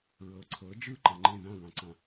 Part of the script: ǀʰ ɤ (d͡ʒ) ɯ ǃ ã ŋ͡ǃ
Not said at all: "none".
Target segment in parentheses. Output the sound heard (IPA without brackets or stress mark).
d͡ʒ